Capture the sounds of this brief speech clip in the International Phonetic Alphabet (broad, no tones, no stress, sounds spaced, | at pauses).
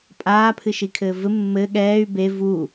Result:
pʼ aː pʰ ɨ ʃ i kʰ ɘː v ɘ mː ɘ ɠ ɛː y̯ b e v u